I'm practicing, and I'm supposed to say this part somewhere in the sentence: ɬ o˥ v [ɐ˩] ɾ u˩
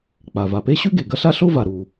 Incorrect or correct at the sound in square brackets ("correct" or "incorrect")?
incorrect